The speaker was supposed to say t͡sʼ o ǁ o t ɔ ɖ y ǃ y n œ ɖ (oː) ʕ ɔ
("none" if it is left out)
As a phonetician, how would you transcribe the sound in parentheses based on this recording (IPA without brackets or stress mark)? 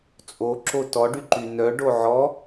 o